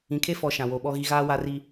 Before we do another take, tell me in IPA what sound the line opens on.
ĩ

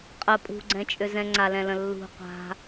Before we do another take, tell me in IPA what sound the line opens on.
qʼ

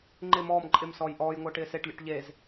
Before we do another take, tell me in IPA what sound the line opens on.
ŋ͡ǃ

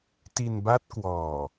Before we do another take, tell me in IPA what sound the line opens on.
t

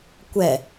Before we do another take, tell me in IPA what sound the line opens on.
kʷ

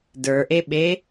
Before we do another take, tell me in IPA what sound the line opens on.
d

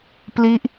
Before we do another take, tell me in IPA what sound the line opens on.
p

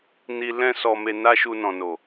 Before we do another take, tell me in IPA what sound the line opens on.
n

